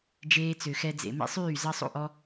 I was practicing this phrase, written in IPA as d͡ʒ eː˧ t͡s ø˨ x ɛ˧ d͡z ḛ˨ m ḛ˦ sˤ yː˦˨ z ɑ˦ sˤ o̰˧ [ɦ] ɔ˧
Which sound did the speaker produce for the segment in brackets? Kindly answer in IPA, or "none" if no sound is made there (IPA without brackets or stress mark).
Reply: ʔ